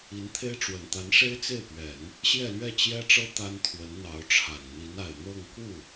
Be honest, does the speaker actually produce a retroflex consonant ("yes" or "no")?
yes